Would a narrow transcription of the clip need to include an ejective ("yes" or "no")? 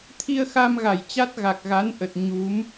no